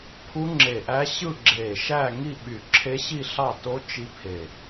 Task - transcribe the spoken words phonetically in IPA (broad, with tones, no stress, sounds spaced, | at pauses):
pʰ u˦˥ ŋ͡ǁ e˧˩ ʔ æ˦˥ ɕ ɯ˥˧ ɡ͡ǁ e˧˩ ʃ æ˥˧ ŋ i˥˧ ɓ y˧˩ ǁʰ e˦˥ ɕ i˥˧ ɬ ɑ˥˧ t o˦˥ t͡ʃ i˦˥ pʰ e˧˩